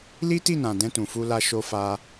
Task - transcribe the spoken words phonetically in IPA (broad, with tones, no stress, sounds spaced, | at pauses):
l i˦ t i˦˨ n ã˨ d ɛ̃˧ t ũ˨ f u˧ l a˧ ʃ o˧ f a˧